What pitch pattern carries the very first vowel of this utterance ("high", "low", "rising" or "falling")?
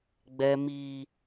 high